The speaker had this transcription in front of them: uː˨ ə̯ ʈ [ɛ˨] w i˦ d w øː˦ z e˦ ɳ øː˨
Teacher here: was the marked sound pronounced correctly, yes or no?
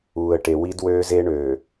no